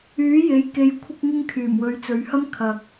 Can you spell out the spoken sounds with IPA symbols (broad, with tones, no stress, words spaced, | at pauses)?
yː˨˥je˨˥j ke˧jkʷʰɪ˥k̚ŋɪ˥ŋ kʰyː˨˩mwɵ˨˧ɥt͡sɵ˨˧ɥhɐ˥m kʰɐ˨k̚